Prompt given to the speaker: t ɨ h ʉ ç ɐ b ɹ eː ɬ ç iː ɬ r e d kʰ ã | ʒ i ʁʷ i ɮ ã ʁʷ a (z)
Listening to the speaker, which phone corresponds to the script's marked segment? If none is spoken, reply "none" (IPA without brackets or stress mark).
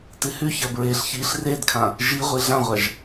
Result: ʒ